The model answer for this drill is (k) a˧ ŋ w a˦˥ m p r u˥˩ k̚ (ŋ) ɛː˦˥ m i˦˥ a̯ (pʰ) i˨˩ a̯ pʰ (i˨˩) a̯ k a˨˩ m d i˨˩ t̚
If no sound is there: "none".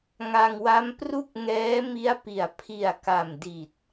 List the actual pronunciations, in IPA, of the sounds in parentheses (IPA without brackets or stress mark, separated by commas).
ŋ, ŋ, p, i˨˩